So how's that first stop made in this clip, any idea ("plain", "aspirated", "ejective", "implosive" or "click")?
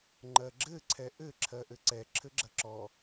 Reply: click